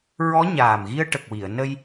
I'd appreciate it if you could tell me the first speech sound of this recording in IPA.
ɹ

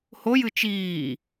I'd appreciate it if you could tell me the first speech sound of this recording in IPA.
h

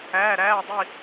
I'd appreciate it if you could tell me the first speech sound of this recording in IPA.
æː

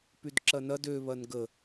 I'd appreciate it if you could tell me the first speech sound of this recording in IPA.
p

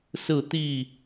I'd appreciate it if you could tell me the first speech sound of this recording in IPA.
s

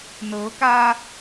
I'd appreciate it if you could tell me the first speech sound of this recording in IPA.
n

